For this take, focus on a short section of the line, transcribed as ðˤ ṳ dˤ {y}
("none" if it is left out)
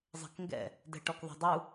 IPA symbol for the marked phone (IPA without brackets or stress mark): u